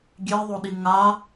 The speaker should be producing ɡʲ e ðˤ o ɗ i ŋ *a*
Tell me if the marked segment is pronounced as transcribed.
yes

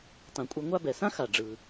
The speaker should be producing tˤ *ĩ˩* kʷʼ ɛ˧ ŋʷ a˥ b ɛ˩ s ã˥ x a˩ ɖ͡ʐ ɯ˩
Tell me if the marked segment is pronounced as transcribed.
yes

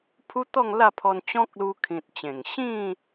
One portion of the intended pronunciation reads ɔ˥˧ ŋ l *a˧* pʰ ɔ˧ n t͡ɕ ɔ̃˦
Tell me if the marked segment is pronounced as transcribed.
no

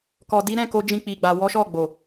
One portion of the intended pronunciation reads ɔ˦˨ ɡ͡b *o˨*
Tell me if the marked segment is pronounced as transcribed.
yes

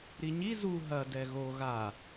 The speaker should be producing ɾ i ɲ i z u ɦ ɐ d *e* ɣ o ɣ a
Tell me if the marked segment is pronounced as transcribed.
no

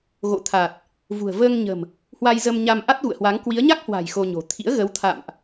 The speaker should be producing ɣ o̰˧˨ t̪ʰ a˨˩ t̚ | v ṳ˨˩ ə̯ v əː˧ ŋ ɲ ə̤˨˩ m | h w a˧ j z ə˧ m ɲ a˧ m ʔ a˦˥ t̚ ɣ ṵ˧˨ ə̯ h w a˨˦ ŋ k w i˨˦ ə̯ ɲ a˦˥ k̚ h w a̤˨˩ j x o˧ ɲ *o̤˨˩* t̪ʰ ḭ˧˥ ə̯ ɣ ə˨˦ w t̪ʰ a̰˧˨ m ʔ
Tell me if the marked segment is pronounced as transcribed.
yes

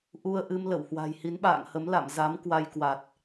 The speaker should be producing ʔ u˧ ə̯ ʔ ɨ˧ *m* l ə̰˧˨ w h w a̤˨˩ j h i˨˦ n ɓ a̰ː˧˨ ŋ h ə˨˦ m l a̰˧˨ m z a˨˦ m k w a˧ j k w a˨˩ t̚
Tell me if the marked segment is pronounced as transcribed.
yes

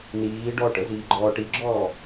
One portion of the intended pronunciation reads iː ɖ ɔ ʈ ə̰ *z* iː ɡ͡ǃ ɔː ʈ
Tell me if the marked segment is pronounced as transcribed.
yes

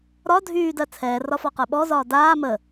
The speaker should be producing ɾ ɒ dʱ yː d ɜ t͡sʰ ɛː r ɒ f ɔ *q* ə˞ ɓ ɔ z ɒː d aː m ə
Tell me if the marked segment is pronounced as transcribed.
yes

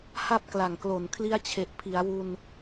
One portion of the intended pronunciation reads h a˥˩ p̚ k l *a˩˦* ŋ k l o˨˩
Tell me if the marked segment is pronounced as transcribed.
no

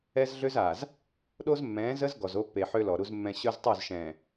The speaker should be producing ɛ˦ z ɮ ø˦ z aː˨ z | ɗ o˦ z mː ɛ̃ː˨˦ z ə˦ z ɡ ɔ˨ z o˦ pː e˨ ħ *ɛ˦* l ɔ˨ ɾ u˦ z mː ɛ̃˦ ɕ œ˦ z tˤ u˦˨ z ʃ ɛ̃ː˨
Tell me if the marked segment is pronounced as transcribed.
no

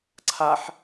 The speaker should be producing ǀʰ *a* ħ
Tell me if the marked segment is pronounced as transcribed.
yes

